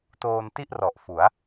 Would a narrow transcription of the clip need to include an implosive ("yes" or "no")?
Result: no